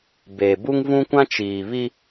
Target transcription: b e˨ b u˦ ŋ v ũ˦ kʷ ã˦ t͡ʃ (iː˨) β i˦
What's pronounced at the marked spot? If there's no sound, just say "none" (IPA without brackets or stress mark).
iː˨